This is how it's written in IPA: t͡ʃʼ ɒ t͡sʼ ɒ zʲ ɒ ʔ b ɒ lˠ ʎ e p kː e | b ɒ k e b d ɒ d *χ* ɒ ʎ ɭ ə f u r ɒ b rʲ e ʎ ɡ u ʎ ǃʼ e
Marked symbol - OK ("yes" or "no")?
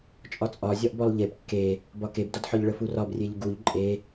no